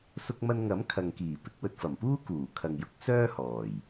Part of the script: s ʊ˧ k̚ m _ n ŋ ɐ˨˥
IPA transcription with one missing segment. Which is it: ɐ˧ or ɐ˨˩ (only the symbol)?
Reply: ɐ˧